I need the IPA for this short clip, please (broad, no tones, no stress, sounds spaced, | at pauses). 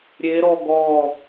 ɾʲ e ɾ ɔ ɡ ɔ